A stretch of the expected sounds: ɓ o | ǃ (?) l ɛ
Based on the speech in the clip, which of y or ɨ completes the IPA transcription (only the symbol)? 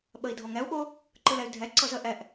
ɨ